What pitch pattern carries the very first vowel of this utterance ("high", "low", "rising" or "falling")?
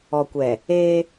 low